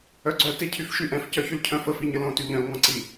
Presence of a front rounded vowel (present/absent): present